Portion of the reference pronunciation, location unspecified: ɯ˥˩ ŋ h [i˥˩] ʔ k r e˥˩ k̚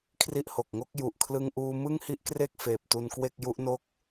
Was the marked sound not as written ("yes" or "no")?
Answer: no